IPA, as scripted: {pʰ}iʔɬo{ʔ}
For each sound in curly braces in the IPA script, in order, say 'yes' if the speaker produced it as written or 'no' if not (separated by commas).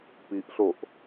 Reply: no, yes